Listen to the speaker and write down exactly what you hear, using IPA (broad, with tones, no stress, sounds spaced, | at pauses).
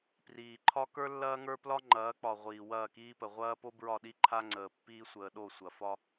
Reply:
p r iː˨ ǃʰ ɒ˦ k ə˞˦ lː ɐː˦ ŋ ə˞˦ p l ɒ˦ ŋ͡ǃ ɐː˨˦ k͡p ɒ˨ ʁʷ iː˨ w ɐː˦˨ k iː˦ p ə˨ ʁʷ ɐː˦ p o˦ b ɹ ɒ˦˨ ɗ i˦ ǃʰ a˦ ŋ͡ǀ əː˨ pː iː˦ sʷ əː˨ ɗ o˦˨ sʷ ɐ˨ f ɒ˦